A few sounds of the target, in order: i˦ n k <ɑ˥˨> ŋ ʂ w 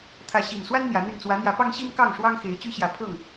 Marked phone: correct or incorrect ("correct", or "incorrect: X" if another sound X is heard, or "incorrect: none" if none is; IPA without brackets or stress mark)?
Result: correct